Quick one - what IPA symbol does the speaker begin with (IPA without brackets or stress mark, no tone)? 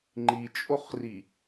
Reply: ŋ͡ǃ